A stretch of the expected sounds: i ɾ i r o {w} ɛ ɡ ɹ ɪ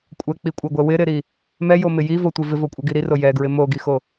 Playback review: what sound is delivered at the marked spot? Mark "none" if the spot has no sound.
j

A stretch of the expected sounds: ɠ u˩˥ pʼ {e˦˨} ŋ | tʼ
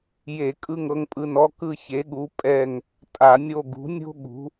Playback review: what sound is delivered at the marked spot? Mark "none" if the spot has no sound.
ɛ˦˨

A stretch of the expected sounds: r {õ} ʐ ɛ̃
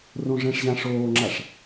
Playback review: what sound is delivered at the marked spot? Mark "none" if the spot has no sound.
õ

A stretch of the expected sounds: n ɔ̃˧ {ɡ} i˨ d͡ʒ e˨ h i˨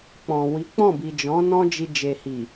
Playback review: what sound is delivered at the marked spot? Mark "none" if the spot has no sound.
d͡ʒ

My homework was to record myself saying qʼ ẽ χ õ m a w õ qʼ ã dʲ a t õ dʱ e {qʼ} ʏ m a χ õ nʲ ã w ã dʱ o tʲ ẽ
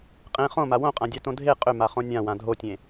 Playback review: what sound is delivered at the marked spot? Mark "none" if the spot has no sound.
qʼ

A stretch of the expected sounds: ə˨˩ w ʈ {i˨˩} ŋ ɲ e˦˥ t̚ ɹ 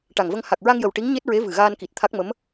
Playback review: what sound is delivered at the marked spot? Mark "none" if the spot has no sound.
i˧˥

